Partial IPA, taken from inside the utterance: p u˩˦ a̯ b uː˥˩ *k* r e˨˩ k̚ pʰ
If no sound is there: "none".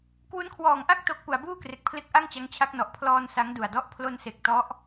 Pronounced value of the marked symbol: k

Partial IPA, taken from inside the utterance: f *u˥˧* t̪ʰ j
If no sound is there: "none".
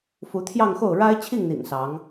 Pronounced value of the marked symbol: u˧˥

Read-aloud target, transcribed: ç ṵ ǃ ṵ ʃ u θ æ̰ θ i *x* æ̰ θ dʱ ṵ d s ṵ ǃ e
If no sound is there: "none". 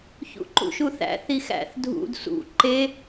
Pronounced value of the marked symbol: x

